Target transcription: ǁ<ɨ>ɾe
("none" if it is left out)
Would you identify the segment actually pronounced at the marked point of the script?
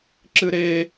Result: ɨ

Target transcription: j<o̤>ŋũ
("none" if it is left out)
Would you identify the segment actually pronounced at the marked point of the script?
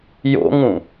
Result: o̰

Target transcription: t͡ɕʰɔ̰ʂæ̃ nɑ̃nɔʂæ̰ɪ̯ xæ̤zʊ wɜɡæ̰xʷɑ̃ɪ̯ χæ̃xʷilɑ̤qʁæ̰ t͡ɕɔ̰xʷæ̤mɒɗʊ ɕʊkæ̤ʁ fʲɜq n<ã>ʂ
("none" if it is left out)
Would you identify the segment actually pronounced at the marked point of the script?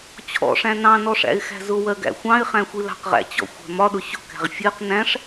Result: æ̃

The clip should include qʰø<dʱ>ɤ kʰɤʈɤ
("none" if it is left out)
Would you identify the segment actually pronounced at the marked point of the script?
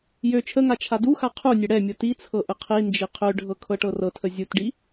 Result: ɖʱ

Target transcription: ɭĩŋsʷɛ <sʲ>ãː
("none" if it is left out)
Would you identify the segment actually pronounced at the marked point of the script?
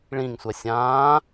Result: sʲ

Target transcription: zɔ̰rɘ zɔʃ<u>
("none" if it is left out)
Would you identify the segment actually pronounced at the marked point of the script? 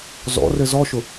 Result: ʊ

